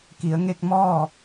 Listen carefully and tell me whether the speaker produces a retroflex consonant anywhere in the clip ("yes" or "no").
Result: no